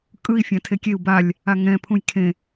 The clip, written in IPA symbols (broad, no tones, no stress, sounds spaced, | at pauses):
kʼ ɯ i̯ fʲ ã tʰ e kʲ e u̯ b a lʲ | a ŋ ɛ̃ pʰ ũ j kʰ ẽ